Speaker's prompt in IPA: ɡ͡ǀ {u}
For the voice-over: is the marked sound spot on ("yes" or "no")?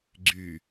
no